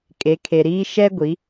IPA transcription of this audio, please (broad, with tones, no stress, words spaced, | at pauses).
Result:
kʼe˨˦kʰe˨ɾiː˦ ʃɛ˦ɡʷi˨˦